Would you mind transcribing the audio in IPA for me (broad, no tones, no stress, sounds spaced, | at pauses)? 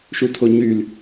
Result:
ʃ u tʰ o ɲ y l